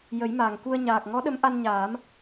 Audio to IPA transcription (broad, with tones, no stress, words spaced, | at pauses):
jə˨˩˦jma˨˩ŋku˧ə̯ ɲaː˨˩k̚ŋɔ˧˥ɗə˧˥mʔa˧n ɲaː˨˩˦m